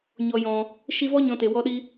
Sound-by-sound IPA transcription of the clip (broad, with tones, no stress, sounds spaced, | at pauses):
ɲ ɔ˨ j ɔ̃˨ | ʃ i˧ v ɔ˦ ɲ ɔ̃˧ t e˨ w ɔ˦ ɗ i˦